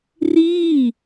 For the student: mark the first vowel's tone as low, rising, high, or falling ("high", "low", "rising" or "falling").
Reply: falling